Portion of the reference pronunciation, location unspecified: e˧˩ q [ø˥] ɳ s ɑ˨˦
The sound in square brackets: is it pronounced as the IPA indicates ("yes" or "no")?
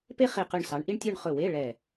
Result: no